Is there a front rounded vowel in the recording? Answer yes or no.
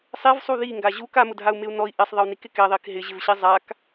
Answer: no